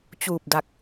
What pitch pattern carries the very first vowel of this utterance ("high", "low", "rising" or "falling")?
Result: low